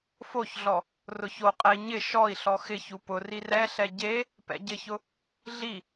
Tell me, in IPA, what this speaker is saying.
foçɮɔ | rʊçoqʼɛi̯ ɲɪ ʃɔi̯ɬɔ xɪçu pʊri rɛɬɛ ɟe | pɛ̰ɟɪçʊ | ɮi

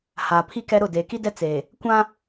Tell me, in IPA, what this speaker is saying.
haː˨ pʰi˦kɛ˦ ɾʊ˦˨ deː˨ki˦dɛ˦ t͡seː˨ | kʷã˦

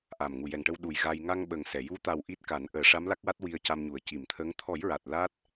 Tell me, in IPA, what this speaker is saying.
ʔa˨˩mŋu˨˩ jɛ˨˩ŋʈə˧w ɗu˨˩j ɣa˧j ŋa˧ŋɓə˨˩ŋsɛ˨˩˨ ju˧˥t̪a˨˩w ʔi˦˥t̚ka˨˩˦n ʔəː˨˩˦ʂa˧˥mla˦˥k̚wa˦˥t̚ wi˧ə̯ca˧mɲu˨˩˨ə̯ ci˨˩˨mt̪ʰə˧˥ŋ t̪ʰɔ˨˩˦jɹa˨˩t̚ la˦˥t̚

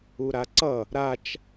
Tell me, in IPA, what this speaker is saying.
uɾaǀʌ | ɾat͡ʃ

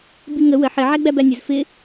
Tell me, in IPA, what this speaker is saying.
biŋə wə ħɪ ʕæɡ͡bæbænʲəz fɪ

